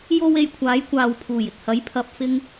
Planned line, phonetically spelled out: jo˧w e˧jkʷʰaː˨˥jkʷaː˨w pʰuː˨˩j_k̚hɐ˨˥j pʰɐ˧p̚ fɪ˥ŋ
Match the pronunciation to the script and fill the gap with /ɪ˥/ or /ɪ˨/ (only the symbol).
ɪ˨